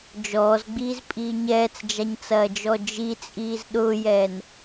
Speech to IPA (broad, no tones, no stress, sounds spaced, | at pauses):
d͡ʒ ɔː z ɡ͡b iː z pʼ iː ɲ ɛː t͡s d͡ʒ a ɲ t͡s ɐː d͡ʒ ɔ d͡ʒ i t͡sʼ iː z ɗ ʊː j ɛː n